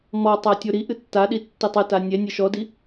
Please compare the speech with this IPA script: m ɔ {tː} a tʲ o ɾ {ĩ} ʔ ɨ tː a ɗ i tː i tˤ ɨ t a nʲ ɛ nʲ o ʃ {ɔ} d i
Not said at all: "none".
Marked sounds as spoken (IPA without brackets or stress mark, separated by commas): tˤ, i, ɔ